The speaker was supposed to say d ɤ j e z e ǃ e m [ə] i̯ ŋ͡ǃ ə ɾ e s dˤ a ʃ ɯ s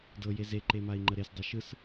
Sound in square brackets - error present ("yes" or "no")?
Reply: yes